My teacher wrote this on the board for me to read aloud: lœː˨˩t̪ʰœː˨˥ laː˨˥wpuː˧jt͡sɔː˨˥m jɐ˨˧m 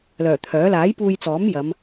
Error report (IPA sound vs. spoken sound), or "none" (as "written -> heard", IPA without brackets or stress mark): w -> j